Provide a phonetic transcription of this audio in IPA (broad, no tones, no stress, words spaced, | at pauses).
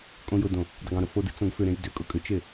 kʼõjʊdõ | dˤʊɡõɾʊ fodɨ t͡sõɡfʏɾẽj dʏkʼʊ kʼʏt͡ʃe